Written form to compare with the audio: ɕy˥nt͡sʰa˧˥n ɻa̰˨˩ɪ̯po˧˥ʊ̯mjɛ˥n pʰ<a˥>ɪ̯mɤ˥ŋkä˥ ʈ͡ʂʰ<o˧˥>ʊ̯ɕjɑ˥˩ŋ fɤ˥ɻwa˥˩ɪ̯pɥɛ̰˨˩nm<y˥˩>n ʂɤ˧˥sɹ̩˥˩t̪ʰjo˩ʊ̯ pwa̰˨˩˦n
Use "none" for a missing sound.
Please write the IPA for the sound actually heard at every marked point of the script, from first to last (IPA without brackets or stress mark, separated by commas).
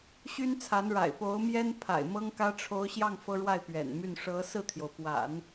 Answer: a̰˨˩, o˧˥, y˥˩